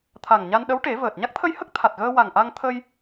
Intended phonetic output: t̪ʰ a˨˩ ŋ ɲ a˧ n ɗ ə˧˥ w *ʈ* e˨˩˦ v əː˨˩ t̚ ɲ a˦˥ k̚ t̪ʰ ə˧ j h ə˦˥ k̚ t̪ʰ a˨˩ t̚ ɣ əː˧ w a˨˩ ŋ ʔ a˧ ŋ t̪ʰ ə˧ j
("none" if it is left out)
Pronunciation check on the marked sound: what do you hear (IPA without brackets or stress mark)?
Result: ʈ